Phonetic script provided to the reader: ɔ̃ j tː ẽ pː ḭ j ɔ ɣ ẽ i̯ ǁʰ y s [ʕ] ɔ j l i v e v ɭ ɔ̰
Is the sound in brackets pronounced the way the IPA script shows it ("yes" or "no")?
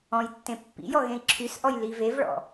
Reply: no